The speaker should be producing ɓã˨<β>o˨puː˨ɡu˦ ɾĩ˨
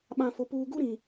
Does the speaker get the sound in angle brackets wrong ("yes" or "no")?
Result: yes